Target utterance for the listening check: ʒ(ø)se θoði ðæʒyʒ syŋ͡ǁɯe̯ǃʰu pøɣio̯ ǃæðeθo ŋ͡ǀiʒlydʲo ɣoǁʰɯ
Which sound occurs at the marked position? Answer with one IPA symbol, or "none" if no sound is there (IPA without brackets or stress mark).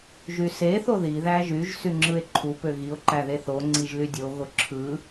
y